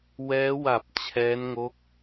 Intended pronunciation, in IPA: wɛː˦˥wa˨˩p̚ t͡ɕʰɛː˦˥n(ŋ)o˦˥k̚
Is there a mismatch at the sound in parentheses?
no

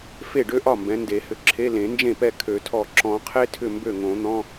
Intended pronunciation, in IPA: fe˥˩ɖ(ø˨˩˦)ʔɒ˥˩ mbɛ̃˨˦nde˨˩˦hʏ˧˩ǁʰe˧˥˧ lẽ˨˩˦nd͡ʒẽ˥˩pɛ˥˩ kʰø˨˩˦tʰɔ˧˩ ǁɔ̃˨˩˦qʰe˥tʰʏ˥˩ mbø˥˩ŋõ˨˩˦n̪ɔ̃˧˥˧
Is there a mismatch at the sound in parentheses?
yes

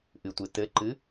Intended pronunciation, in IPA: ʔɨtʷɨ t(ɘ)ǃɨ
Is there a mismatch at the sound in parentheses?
no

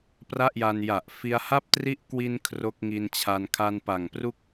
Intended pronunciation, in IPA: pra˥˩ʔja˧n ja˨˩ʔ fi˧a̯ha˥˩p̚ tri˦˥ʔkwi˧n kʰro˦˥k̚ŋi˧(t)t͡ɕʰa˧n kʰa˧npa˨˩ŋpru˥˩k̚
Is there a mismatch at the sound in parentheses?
yes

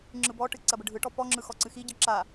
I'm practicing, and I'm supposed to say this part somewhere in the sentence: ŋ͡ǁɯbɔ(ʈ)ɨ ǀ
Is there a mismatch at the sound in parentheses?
no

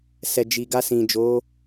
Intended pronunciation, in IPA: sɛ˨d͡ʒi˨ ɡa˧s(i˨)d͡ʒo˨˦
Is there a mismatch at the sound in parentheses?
yes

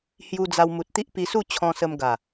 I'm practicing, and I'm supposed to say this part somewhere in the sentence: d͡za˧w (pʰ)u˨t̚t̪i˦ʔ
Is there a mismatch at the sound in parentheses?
yes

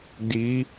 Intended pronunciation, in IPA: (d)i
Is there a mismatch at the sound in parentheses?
no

